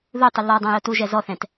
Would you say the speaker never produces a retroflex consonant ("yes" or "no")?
yes